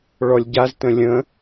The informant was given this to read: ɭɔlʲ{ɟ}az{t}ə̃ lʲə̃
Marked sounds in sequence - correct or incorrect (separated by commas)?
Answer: correct, correct